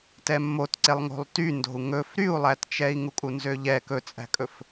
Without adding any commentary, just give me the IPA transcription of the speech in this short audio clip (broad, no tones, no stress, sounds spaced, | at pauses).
t ɛ mː o t ǀ e lˠ ŋ o̤ lˠ t y n d o̤ u̯ ŋ ɵ f ɾ y u̯ lˠ æ t t͡ʃ ɛ i̯ ŋ u kʼ u n z ø ʎ ɛ k ɵ t͡sʼ æ̤ kʼ ɵ f